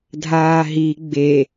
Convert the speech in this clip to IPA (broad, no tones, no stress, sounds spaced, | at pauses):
dʱ aː ɦ i ɡ͡b e